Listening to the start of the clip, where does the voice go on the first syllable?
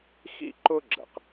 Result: high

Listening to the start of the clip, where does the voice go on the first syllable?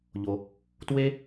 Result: low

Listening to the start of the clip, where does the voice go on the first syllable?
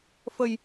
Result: low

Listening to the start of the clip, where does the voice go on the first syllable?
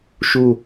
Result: falling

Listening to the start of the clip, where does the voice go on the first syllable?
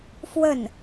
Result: falling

